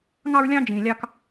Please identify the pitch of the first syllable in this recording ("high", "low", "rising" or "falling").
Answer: high